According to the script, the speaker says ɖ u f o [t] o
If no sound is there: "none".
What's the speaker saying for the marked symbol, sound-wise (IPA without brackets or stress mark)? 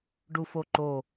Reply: ǃ